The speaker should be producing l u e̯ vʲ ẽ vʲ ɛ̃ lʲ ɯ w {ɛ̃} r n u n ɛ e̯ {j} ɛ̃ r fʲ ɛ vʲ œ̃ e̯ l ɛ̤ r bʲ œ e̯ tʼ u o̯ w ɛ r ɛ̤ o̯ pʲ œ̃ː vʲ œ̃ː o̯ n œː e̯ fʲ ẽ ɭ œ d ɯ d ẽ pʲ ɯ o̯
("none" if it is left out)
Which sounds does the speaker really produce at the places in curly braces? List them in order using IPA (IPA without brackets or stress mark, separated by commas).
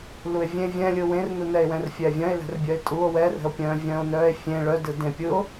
ẽ, w